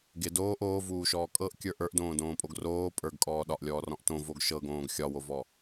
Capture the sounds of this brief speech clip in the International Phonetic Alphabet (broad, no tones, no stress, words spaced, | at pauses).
ɡɪ doːʔ oːvuːʃɔː kʼɤʔkʲə˞ ʔə˞ʔdõːdõːpʼoɡ roː pʼə˞ɡkʼɔː ɗɒʔlʲɔːrɔ̃ʔ tõvoɡ ʃɤɡõːɡ xʲɒwovɔ